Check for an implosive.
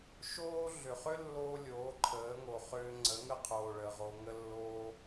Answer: absent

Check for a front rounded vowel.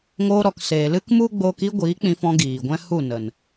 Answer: absent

